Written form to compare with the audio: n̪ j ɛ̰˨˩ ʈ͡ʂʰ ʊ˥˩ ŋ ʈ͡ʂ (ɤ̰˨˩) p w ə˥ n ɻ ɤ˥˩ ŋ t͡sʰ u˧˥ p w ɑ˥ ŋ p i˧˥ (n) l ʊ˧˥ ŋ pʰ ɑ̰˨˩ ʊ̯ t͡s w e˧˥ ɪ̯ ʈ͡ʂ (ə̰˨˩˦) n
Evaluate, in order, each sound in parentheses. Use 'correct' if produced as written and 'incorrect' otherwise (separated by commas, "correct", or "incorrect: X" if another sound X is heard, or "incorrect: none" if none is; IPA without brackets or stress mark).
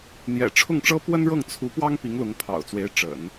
incorrect: ɤ˥, incorrect: ŋ, correct